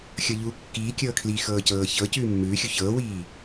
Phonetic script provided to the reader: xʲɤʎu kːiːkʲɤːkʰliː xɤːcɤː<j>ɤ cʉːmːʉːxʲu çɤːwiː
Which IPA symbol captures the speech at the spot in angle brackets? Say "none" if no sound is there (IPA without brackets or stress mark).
ç